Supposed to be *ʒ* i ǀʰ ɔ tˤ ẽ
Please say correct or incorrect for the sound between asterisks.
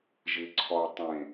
correct